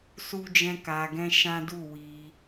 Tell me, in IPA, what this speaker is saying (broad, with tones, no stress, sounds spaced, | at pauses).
s u˦ d͡ʒ ɛ̃˦ k a˧ ɡ ɛ̃˦ ʃ ã˦ d u˦˨ w i˧